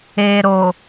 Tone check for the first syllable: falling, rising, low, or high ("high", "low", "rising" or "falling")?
low